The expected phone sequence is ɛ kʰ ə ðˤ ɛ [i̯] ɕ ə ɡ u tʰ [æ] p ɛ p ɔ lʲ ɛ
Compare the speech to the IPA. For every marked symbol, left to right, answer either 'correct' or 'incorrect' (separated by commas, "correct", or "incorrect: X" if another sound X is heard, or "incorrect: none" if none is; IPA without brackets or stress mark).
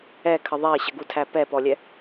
correct, correct